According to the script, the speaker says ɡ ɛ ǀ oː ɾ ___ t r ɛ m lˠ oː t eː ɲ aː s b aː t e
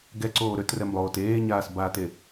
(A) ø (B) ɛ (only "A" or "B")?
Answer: A